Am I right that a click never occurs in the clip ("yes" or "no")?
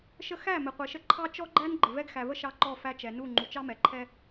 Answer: no